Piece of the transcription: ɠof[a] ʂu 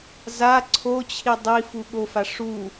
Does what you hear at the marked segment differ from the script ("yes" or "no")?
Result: no